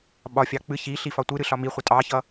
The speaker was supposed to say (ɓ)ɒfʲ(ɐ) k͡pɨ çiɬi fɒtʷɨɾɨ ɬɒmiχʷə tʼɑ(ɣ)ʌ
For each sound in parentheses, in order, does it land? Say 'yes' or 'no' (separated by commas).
yes, no, no